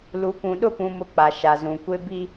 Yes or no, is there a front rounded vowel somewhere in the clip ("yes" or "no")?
no